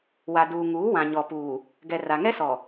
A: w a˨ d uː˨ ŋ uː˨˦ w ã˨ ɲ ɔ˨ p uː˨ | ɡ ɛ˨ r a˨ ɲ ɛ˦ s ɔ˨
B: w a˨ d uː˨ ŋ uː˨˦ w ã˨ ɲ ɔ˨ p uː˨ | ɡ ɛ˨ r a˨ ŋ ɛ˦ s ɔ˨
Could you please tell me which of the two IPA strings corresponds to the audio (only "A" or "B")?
B